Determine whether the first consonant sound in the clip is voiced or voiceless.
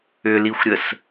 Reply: voiced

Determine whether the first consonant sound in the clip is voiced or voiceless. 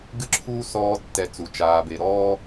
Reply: voiced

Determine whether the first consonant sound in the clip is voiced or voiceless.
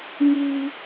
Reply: voiced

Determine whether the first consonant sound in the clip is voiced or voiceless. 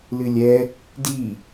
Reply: voiced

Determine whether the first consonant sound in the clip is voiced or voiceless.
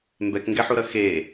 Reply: voiced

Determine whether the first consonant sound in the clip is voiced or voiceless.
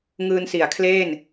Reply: voiced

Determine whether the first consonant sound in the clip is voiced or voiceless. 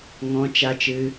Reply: voiced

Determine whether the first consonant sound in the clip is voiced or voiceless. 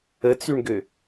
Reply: voiceless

